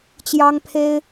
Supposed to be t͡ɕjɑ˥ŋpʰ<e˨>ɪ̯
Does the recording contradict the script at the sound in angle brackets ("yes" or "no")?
yes